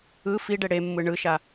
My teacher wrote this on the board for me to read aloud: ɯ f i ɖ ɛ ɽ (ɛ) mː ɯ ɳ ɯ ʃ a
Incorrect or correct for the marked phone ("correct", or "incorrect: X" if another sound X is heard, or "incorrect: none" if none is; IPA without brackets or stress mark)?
incorrect: e